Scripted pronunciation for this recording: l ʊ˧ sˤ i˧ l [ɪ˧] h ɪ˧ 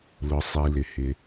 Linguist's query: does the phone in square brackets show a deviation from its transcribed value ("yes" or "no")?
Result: yes